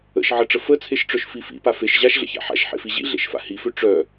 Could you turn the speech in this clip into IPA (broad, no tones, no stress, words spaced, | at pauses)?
ə̰ʃ ʕəʈ͡ʂə fət͡sʰeʃʈ͡ʂœʃfi fḭpa feʃ ʑaʃɮə̰ça̰ ħa̰ʃħḛfi ʑḭɮḛʃfa̰ hifø ʈ͡ʂœ